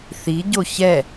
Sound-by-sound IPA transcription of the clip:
θiɟo çɛ

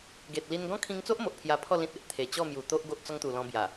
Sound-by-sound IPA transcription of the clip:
ɡe˨t̚li˧n ɡɔ̃˦kʰĩ˧ŋt͡so˦ʔmo˨ʔ pʰja˧pʰɔ˥˧ lĩ˦t̚e˦ʔ t̪ʰe˨˩t͡ɕɔ˥˧ mju˨˩t̪o˦ʔ ɡo˦ʔ t͡sɔ˦ŋt̪u˨˩ lɔ̃˧bja˨˩

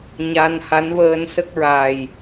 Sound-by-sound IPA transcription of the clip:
ɲa˧nha˧˥nvəː˧n sə˦˥k̚ɹa˨˩j

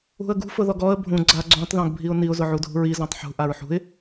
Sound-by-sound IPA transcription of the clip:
ṳə̯ɡṳ fʊðɔɡɔə̯ bʱũ ɡ͡ǀa ɡ͡ǀũtˤ ðɔ̃ɡbʱiʊ̯niʊ̯ zʊʕudʱṳɹi zɔ̃tˤħṳ ʔaɹħṳɪ̯

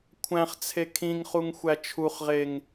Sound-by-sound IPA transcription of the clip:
kʷʰæ̃χt͡sʰe kʰĩŋχuŋxʷæ t͡ʃʰuχʁeŋ

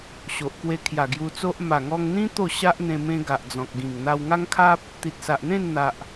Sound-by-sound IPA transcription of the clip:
ɕo˨ʔkwe˧kʰja˨˩ ɡju˧t͡so˦ʔ ma˨˩ŋɔ˧ŋn̪ĩ˦ t̪o˥˧ɕa˦ʔn̪ẽ˧ mẽ˧ ɡa˨ʔd͡zɔ̃˨k̚ɡĩ˨˩ŋ n̪a˧wŋa˦ŋkʰa˦p̚ | t̪i˨t̚sa˨ʔn̪ẽ˥˧nn̪a˨ʔ

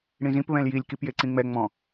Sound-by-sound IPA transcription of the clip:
ɽĩzĩp βɛ̃ljilʲ kipjeǀĩŋ͡mɛ ŋ͡mɔ̃

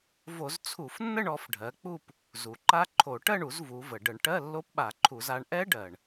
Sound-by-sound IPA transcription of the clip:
vo˧˩˧zt͡sʰu˧˩˧fnːə˥˧ɳ ɔ˩˧fɖʱɜ˩˧k͡pu˥˧p | zu˩ ǃa˦˥ǃʰo˧˩˧ ʈɜ˥˧ɳu˧˩˧z vu˩˧və˩ ɖə˧˩˧ɳʈɜ˧˥˧ lːo˦˥pɓa˧˩˧ǃʰu˧˩˧z a˩˧ɳʔɛ˦˥ɖɜ˩ɳ

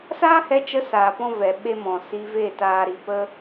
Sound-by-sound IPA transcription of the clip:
saː˦hɛ˧t͡ʃə˧ saː˨pɔ̃˦vɛ˨ ɓe˦mɔ̃˨ si˧ve˦˨ taː˦ɾi˧ pə˦

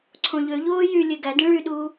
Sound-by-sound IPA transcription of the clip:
ǀʰõʎøʎoː jy lʲeɡædĩ ɭyɗuː

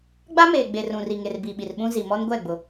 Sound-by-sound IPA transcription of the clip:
ɡ͡ba˦meː˨ ɡ͡be˨rũ˨ri˨ŋe˨r bi˨ɓi˨rɓũ˦ zi˨mɔ˦n ɡʷɛ˦˨ ɡ͡bʊ˦

